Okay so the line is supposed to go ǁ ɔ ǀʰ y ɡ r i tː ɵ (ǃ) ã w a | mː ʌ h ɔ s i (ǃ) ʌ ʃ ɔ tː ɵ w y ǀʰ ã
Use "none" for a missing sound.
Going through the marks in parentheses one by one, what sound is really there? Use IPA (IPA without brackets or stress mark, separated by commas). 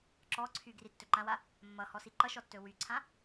ǃ, ǃ